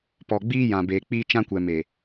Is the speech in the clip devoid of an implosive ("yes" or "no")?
yes